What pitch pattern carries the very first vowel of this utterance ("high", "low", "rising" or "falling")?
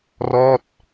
falling